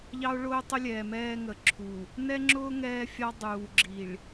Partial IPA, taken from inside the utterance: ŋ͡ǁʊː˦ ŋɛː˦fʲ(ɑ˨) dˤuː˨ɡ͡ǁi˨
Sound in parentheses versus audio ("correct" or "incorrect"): incorrect